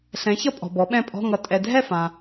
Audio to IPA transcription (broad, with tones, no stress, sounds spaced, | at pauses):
ɬ ɛ̃˩˥ ç ʌ˥˧ pʼ ɔ̤˨ b ɔ˩˥ ɓ ɛ̃˥˩ pʼ ɔ̤˧˥˧ ŋ ʌ˨ tʼ ɛ˨ dʱ ɛ˥˩ f ã˨